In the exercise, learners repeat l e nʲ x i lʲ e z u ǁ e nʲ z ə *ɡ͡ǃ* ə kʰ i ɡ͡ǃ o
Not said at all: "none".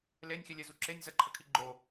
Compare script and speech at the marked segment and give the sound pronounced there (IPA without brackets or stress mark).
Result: ǃʰ